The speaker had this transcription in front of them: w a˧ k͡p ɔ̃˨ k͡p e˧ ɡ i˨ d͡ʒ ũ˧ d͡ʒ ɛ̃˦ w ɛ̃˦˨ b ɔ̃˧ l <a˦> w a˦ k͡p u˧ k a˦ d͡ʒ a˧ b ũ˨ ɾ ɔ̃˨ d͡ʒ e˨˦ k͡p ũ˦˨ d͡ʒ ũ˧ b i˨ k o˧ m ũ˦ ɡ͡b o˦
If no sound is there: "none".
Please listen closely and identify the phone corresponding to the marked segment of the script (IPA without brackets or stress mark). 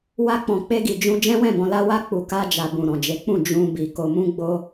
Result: a˦